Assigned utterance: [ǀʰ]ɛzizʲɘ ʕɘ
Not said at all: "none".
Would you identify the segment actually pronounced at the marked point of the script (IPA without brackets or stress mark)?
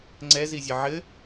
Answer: ŋ͡ǀ